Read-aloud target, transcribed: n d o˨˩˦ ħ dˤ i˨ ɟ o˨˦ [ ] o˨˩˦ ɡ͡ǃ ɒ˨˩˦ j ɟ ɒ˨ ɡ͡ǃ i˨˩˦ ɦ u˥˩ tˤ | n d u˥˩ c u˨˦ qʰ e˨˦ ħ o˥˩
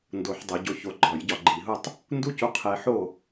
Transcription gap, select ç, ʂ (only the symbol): ç